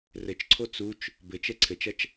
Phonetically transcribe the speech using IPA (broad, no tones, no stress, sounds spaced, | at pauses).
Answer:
r ɘ t͡ʃ ǀʰ o t͡s u t͡ʃ | b ɘ t͡ʃ ɛ ǀʰ ɘ t͡ʃ ɐ t͡ʃ